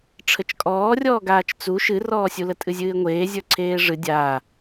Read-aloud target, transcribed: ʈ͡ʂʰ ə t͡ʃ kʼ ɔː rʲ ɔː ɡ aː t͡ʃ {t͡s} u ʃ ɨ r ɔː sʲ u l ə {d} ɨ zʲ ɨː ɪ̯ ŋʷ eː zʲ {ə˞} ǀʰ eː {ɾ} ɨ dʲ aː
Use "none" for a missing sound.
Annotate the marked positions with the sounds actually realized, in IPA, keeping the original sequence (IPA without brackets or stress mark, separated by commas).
t͡s, tʼ, ə˞, ʐ